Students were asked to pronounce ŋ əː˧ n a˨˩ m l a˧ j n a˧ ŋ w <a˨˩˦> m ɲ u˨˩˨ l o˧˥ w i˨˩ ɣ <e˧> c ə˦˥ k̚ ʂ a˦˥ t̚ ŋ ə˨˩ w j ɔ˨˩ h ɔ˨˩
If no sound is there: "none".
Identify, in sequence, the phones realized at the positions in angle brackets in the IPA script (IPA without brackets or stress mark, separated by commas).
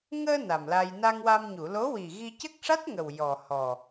a˧, i˧